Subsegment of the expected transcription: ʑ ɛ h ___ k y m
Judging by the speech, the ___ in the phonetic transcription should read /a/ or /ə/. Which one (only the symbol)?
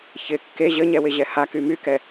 a